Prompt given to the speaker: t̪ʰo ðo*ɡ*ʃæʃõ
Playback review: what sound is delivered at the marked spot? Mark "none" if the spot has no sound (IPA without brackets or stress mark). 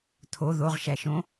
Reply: ʁ